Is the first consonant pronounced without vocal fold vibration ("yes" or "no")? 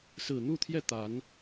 yes